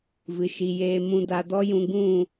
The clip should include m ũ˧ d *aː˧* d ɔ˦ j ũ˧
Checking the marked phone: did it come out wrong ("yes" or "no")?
yes